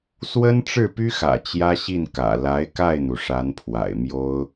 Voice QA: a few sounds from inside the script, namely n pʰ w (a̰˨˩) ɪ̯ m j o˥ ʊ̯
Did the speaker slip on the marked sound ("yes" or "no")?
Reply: no